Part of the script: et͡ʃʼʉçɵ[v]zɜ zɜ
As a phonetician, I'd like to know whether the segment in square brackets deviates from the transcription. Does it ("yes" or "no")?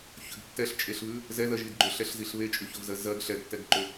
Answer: no